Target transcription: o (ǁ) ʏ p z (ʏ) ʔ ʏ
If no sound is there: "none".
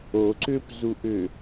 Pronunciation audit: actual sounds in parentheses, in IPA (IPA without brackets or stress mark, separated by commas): ǀ, u